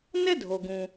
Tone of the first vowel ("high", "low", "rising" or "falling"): high